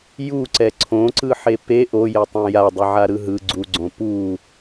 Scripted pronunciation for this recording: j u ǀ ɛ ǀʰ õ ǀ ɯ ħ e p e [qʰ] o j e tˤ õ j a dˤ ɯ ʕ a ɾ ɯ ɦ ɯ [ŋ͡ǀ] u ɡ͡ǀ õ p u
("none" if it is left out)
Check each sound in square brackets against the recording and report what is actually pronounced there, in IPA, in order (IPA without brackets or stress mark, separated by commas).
ʔ, ɡ͡ǀ